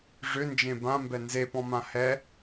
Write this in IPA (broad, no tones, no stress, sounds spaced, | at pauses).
ʐ ʏ n d͡ʒ ẽ b ã m b ɛ n z e p ɔ̃ m ã h ɛ